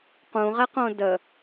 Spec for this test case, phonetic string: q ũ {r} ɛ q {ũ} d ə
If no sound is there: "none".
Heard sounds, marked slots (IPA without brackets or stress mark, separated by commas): ʁ, õ